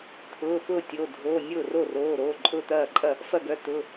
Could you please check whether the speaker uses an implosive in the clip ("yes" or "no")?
no